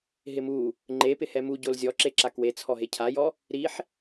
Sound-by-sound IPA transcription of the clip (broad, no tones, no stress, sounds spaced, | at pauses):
ɦ ɪ m u | ŋ͡ǃ e p ɪ h ɛ m u ɟ o l zʲ ɔ ǁ e ǁ a k w e t͡sʰ ɔ ɦ e cʰ a j ɔ | ɾ i ħ